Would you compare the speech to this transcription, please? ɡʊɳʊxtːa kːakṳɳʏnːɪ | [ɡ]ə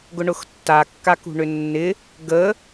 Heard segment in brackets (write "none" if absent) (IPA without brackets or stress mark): ɡ